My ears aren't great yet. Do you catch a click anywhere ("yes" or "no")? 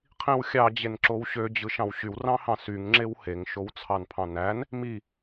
yes